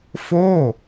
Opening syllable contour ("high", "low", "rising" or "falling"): falling